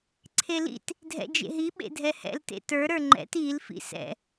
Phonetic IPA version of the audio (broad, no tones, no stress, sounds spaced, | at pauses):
ǀʰ e l ḭ t | dʱ ɛ̰ d͡ʒ ḛ ɦ i ɓ ḛ dʱ ɛ h ɛ̰ l t ḛ t ə˞ ɾ ə˞ ŋ͡ǃ ɛ̰ t i l f ḭ s ɛ̰